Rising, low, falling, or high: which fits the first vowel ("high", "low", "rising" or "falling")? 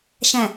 low